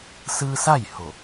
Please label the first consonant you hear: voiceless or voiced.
voiceless